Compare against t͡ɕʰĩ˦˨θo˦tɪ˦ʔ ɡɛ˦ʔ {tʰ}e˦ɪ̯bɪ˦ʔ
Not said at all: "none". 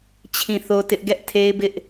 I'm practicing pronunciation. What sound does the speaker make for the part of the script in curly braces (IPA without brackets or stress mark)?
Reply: tʰ